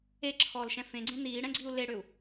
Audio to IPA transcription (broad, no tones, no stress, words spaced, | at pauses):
eǁʰɔːlʃɛ̃ fẽɡ͡ǀẽ n̪iːɽɛ̃ɡ͡ǀiu̯ leɽøu̯